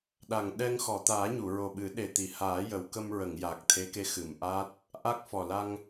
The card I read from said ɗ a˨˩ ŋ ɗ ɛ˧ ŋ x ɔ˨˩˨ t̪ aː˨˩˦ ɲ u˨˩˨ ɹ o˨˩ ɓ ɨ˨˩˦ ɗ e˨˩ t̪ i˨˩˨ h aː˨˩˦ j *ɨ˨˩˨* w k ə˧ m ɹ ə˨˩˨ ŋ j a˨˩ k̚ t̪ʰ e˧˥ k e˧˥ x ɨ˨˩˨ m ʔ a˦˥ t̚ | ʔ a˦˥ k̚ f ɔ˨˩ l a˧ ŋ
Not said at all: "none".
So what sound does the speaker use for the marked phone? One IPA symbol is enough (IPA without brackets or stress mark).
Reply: ə˨˩˨